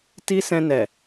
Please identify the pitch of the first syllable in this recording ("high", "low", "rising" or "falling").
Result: high